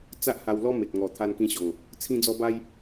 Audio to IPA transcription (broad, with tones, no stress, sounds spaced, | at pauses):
t͡s a˦ ʔ h a˧ w l ɔ˦ m e˨ t̚ ŋ ɔ˨˩ t̪ʰ a˧ n k ĩ˧ ɕ ɔ˨˩ ŋ | t͡sʰ ĩ˦ d͡z ɔ˦ b a˦ j